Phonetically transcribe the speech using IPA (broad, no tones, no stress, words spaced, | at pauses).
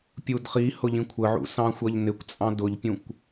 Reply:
pʲudχi hʊʎĩkʷʰəʕṵ sɑ̃xʷʌʎnɪkʷt͡sʼɑ̃ dʊʎpʲũkʷ